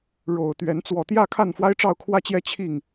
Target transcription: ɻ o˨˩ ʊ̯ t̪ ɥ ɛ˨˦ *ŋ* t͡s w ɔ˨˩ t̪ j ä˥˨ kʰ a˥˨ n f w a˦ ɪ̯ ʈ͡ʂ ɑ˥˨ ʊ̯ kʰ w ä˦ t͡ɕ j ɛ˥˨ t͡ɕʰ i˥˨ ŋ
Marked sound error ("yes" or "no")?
yes